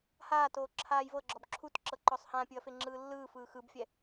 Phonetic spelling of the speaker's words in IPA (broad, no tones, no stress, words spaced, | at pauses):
haːtoː ǁʰaːjvɤɡ͡ǁɔb ǁʰutǁɤ ǃɔsˤhãpʲɯɐ̯ feŋ͡ǁɯːlːɯːfɯː xɯbfʲɛ